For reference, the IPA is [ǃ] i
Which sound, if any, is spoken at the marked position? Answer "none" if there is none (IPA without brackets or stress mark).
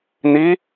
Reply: n̪